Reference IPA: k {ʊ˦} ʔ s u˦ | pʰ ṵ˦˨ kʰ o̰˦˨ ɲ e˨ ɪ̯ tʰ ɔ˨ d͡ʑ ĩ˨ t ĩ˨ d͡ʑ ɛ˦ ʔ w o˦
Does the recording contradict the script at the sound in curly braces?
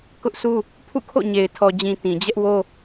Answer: no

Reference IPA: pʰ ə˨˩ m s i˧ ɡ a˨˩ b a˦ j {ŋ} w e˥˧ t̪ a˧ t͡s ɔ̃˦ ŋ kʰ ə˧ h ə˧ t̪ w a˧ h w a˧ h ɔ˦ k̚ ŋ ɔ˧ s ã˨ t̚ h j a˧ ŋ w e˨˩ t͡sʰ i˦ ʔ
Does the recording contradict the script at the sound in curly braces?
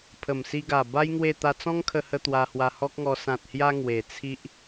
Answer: no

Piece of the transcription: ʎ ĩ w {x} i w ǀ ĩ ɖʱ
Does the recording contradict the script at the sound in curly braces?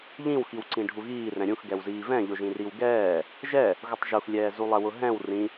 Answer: no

